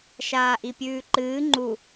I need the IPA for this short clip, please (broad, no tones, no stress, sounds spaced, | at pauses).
ʃ aː ʔ i pʲ ʉː ǃ ɨː ŋ͡ǃ u